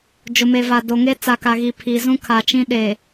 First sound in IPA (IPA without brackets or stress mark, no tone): d͡ʒ